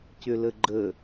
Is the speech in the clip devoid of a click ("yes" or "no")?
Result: no